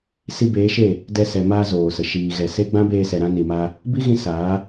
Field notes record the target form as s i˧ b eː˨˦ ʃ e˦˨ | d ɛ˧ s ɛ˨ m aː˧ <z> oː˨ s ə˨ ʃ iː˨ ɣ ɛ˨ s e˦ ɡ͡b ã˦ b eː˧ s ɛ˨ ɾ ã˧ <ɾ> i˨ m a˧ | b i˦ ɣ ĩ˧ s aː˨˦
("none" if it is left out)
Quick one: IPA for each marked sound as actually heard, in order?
z, n

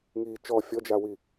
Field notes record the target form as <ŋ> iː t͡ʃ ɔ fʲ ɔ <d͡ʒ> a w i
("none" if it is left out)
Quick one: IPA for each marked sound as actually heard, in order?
ŋ, d͡ʒ

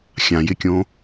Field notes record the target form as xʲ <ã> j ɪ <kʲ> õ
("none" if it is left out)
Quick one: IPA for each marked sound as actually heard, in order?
ã, kʲ

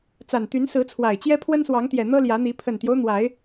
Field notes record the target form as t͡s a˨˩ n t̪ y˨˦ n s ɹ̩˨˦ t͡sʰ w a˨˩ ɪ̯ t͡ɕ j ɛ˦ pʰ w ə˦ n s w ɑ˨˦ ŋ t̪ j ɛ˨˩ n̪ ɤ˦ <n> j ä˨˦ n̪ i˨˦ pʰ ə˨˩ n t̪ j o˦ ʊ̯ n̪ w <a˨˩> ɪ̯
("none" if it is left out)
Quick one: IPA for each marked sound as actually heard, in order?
l, a˨˦

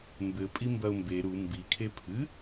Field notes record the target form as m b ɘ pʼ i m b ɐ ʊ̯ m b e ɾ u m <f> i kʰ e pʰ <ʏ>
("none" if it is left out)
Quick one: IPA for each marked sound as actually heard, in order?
b, ɨ

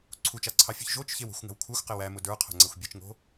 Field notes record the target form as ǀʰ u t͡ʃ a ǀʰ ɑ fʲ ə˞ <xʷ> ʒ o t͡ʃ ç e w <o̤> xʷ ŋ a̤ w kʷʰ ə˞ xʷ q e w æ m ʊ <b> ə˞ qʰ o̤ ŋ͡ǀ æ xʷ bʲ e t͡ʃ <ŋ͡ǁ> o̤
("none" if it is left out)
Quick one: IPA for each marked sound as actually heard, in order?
ç, o̤, d, ŋ

